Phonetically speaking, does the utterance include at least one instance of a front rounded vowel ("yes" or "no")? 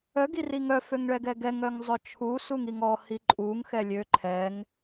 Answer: yes